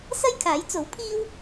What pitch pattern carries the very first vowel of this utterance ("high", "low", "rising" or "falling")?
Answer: high